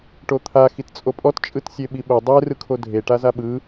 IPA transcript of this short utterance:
ʈ o t̪ʰ a x i t t͡sʼ o pʼ ɔ t t͡ʃʼ ɯ t sʲ e ɓ i ɓ o dˤ e r ɯ kʰ o dʱ e ʈ a z a ɓ ɯ

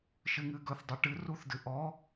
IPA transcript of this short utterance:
ʃ ɨ ŋ ɨ ɡ ɵ θ dˤ ɨ ʈ ɨ r u θ d ɨ ʔ ɔ

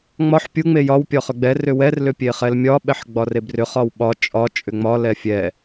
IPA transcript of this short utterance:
ŋ͡m ɒ ħ pʲ u ŋ͡m e j ɒ w pʲ ɒ χ ʏ ɡ͡b ɛ r ʏ w ɛ r l ʏ pʲ e χ ɛ l mʲ ɒ ɓ ɛ ħ ɡ͡b ɒ r e b r ʏ χ ɒ w ɓ ɒ t͡ʃʼ ɒ t͡ʃʼ ʏ ŋ͡m ɒ l ɛ fʲ ɛ

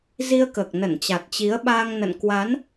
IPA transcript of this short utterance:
z i˧ ə̯ k əː˨˩ k̚ n ə˧˩ n t͡ɕ a˨˩ t̚ t͡ɕ i˨˦ ə̯ ɓ aː˧ ŋ n ə̰˧˨ n k w a˨˦ n

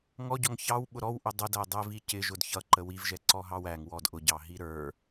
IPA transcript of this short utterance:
ŋ ɔ ɟ ɔ ŋ ç ɑ w ɓ ʊ ɾ ɔ w ʔ ʊ dˤ ə d æ dˤ ɛ v i c ɪ ʒ ʊ d ç ʌ ǃ ə w i v ʒ ɛ ǀ ɔ ɦ ɑ w æ ŋ w ɔ d ʔ ʊ ɟ ɑ ɦ i ɾ ə˞

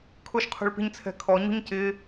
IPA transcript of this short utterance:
kʰ ʊ ʃ qʰ ṳ ɭ p i̤ ɲ t͡sʰ ɛ̤ kʰ ɔ ɲ ṳ ɲ c ɪ

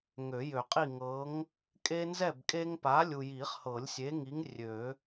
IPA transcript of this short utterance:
ŋ ø˨˩˦ j ø˨˩˦ qʼ i˥˨ ŋ ɤ˨˥ ŋ | kʼ e˦ n z ɛ˥˨ b kʼ e˦ ŋ p a˨˥ lʲ u˨ j i˨˩˦ χ h ɤ˨˩˦ lʲ sʲ e˨˥ ŋ i˨˥ ŋ rʲ ø˨˩˦

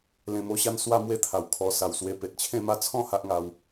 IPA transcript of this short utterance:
l ẽ˨˩ m o˧ ɕ a˧ n s w a˥˧ m w e˥˧ t̪ʰ a˨˩ w kʰ ɔ˧ s a˨˩ w s w e˧ p e˨ t̚ t͡ɕʰ ẽ˥˧ m a˥˧ t͡sʰ ɔ̃˥˧ h a˦ ʔ ŋ a˧ w

